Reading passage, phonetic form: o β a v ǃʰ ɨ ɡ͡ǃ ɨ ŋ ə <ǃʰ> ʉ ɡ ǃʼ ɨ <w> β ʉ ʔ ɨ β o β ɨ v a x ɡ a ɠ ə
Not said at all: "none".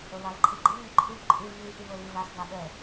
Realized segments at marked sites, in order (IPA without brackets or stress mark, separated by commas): ǃʰ, v